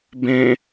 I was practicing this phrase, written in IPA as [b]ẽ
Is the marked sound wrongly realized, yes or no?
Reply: no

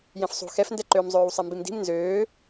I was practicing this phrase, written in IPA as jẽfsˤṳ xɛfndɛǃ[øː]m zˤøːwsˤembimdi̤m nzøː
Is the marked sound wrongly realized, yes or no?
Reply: no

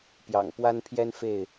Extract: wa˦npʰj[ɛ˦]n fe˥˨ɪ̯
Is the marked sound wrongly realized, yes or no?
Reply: no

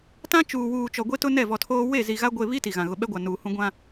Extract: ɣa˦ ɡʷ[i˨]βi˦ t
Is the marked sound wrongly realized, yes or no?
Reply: yes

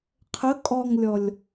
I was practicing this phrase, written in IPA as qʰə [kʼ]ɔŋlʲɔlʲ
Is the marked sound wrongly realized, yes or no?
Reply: no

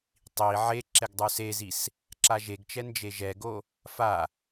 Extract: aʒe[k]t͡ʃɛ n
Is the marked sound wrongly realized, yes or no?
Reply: yes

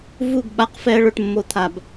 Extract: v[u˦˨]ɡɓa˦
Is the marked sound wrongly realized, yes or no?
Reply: no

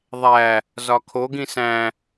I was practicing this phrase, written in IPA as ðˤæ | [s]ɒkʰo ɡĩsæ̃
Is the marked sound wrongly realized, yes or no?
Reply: yes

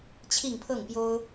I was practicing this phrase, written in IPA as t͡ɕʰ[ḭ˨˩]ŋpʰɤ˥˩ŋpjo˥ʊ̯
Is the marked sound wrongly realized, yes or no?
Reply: yes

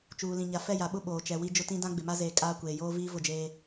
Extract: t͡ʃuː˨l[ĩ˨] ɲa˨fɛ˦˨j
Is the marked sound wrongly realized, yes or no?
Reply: no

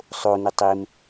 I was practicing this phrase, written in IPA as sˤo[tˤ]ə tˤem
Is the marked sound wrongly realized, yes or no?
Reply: yes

